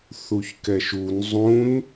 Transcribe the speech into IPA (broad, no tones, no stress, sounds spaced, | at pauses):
θ u ç k ɛ ʃ u n zˤ ũ n